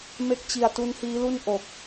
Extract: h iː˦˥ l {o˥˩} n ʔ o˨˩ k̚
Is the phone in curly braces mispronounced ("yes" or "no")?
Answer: yes